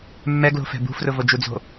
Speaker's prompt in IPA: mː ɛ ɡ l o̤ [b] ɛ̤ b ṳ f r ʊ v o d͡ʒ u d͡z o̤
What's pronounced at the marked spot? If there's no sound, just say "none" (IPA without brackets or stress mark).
f